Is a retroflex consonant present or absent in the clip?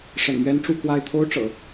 present